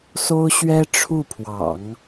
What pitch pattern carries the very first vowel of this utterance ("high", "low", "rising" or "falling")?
high